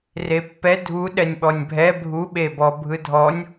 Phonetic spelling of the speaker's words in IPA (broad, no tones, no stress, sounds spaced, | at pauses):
r e pː ɛ dʱ u ɗ ɛ nʲ ɓ ɔ nʲ bʱ ɛ bʱ u ɓ e b ɔ bʱ ɯ dʱ ɔ nʲ